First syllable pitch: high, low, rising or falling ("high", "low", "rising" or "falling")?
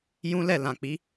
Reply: high